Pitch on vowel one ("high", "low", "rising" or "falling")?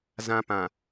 low